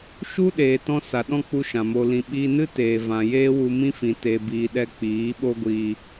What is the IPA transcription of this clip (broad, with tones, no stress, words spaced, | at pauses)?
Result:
ʃu˦ɗeː˨tɔ̃˧ sa˨ɗɔ̃˦k͡pu˧ ʃã˨mo˧lĩ˧ ɓiː˧nɨ˦teː˨ vã˨ jeː˦wu˧mĩ˦fĩ˨ te˨biː˨ɗɛ˧ k͡piː˨˦ɓo˦ɡʷiː˧